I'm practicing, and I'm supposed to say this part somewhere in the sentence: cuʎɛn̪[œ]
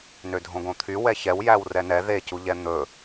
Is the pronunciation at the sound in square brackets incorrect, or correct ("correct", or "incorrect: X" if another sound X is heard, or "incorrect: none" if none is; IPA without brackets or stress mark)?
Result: incorrect: ɵ